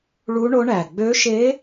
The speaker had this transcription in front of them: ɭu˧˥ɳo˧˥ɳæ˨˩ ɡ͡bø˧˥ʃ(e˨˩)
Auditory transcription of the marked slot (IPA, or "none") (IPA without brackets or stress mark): e˧˥